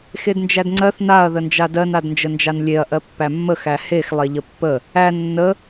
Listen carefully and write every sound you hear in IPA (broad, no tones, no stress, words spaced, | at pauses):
xednd͡ʒædŋ͡ǀɜθ naɐ̯ ðənd͡ʒadɜn adnd͡ʒənd͡ʒanlʲeɐ̯ ʔɜpːæmːəx æhex lˠeʎəpːə | æ nːə